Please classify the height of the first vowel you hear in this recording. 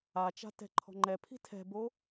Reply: low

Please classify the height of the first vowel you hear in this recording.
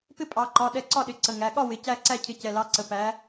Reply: high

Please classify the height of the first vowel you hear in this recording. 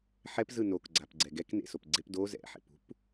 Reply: mid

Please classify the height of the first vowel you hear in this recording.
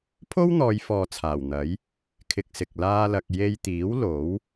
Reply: mid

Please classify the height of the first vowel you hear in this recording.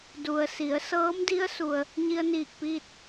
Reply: high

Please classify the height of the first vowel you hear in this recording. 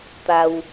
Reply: low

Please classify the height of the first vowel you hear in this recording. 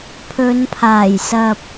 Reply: mid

